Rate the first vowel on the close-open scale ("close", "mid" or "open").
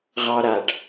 open